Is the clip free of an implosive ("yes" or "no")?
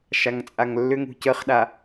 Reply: no